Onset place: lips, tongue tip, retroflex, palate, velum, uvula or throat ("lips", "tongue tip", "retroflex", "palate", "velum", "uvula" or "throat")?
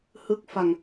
throat